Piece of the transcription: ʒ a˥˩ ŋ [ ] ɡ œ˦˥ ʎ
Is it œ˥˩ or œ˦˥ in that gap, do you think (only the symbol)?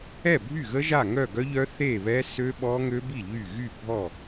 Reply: œ˥˩